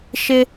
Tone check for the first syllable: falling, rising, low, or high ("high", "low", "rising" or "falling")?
high